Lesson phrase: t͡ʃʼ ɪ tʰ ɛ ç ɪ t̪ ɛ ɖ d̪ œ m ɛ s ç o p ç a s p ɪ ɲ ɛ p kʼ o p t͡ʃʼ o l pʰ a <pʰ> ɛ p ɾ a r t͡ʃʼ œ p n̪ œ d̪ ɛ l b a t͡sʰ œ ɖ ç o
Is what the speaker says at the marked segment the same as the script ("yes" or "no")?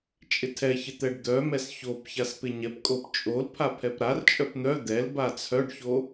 yes